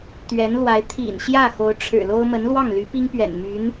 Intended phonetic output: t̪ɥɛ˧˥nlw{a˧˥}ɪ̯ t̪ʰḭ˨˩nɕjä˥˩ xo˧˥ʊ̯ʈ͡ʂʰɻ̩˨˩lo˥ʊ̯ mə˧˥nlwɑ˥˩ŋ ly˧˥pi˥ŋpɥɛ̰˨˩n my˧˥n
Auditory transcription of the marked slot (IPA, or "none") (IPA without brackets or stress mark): a˧˥